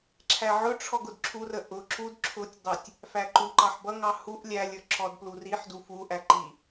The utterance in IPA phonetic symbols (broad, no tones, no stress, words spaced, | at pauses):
ǁʰæʕʊʈ͡ʂʰɔ ɡʊdǁʰurə ʔʊ ǁud ǁʰʊtʲdˤætʲ | fæǃuǃɑħ bʌŋɑ huʔ lʲælʲə˞ ǁɔdpluriħdu fuʔæ ǃi